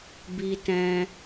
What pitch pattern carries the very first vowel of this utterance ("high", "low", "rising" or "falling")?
high